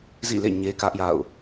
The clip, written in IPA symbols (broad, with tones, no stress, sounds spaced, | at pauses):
z ḭ˦˨ l ḛ˦˨ ɲ e˦ k ä˦ ʔ j a̰˦˨ ʊ̯